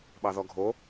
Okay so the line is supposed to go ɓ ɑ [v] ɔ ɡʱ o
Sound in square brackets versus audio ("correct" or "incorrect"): incorrect